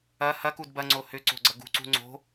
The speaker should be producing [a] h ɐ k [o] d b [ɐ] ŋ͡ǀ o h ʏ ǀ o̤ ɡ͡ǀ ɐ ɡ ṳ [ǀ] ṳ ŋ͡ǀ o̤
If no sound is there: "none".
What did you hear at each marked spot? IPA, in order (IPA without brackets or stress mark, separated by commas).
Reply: ɐ, u, ɐ, ǀ